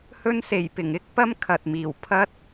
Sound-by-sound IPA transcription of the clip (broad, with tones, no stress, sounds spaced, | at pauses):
h ɵ˧ n s e˨˩ j p ɪ˨˩ ŋ ɪ˥ k̚ p ɐ˥ m kʰ ɐ˨ t̚ m iː˨˩ w pʰ ɐ˥ t̚